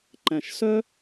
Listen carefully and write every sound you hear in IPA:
ǃ æ̃˨˩ ʃ s œ˥

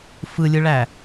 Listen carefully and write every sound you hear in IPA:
f ɯ lʲ ɯ ɭ æ

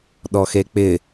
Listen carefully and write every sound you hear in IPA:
ɗ ɔ x e k͡p ɪ

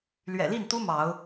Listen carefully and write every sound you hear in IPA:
l ɥ ɛ̰˨˩ l i˥˨ n t̪ u˦ m ɑ˨˦ ʊ̯

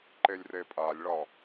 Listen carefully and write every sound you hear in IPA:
ǃ e lʲ r e pʼ a lʲ ɭ ɒ

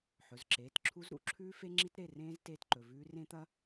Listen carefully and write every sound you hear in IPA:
ħ ɵ˩˧˩ z ǁ eː˩˧˩ t ǁʰ u˦˥ z ɾ ṵ˩˧˩ ǁʰ ʉː˦˥ f e˦˥ ŋ͡ǁ i˦˥ t ɾ e˩˧˩ r ẽː˦˥ z t eː˦˥ t ǃ ɵ˩˧˩ v ʉː˦˥ r ẽ˦˥ t̪ ɐ˦˥

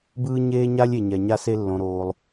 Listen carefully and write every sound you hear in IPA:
b ɯː˥ ɲ eː˥ ɲ a˥ lʲ e˩ ɲ ɛ˩ ɲ a˧ s e˧ lː õ˩ ɾ oː˩ lˠ

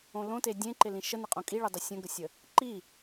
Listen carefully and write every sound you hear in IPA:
õ l õ t e dʲ ẽ ǃ ɪ l ĩ ʃ ə n ɪ qʼ õ kʼ i ɭ i dˤ ə sʲ ə̃ ɡ ə sʲ ə | ǃ i

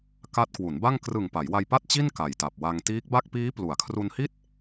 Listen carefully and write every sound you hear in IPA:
k a˦˥ t̚ k w u˩˦ n b a˥˩ ŋ k r ɯ˨˩ ŋ p a˩˦ j w a˧ j p a˥˩ t̚ t͡ɕ i˥˩ n k a˨˩ j t a˨˩ p̚ w a˧ ŋ t iː˦˥ k̚ b a˥˩ k̚ p iː˦˥ p l u˩˦ a̯ kʰ r u˧ n h i˥˩ t̚

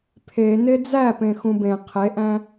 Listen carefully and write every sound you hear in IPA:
pʰ e n e d͡z æ p ẽ x ũ b ẽ qʰ e ʔ æ̃

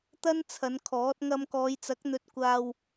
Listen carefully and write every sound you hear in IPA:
t̪ ɐ˥ n t͡sʰ ɐ˨˧ n kʰ ɔː˨˥ t̚ ŋ ɐ˧ m k ɔː˨˧ j t͡s ɐ˨˥ k̚ n̪ ɵ˧ t̚ kʷ aː˧ w

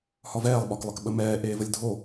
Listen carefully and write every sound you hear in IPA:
h ɒ v ɛː lˠ ɓ ɒ k lˠ ə k ɓ ə m ɛː ʔ eː v ə lʲ dʱ o

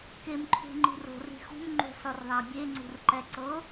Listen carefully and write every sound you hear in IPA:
k e m ǃʰ ṳ ŋ͡ǃ i̤ r o̤ r i̤ x ṳ m ŋ͡ǃ ṳ sˤ o r ðˤ a bʲ e ŋ͡ǀ ṳ r ǃ ɛ ǀ ɤ

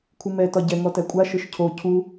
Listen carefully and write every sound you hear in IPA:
kʷʰ ɯ m ɛ t ɒ ɟ ɛ ŋ ɔ t æ kʷʼ a ʃ ɯ ʃ cʰ o cʰ u

